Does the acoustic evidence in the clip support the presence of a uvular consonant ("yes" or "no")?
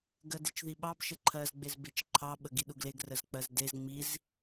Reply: no